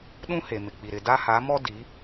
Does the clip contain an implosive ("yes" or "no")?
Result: yes